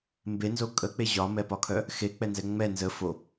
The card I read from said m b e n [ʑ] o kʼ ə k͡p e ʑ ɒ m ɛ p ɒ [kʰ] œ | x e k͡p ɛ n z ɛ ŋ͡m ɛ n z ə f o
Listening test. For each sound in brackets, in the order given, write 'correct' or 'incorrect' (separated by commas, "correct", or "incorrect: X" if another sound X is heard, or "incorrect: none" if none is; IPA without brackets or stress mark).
incorrect: z, correct